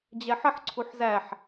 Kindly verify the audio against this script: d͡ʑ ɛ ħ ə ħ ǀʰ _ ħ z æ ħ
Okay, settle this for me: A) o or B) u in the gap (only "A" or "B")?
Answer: B